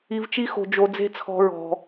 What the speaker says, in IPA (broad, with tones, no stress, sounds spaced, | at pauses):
i˧ v t͡ʃ i˦ x o̤˧ d͡ʒ o˧ d͡z e̤˦ t͡sʰ ɔ̤˧ ɹ ɔ̤˧